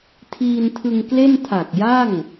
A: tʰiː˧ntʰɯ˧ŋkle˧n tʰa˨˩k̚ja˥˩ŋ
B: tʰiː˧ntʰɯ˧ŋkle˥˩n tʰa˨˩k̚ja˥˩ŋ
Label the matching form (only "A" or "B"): B